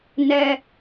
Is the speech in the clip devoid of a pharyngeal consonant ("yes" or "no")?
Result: yes